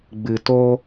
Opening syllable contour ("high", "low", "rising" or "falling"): low